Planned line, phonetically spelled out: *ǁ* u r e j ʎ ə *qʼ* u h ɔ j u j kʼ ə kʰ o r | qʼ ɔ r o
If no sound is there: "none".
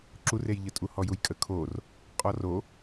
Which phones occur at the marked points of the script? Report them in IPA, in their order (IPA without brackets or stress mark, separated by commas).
ǁ, tʼ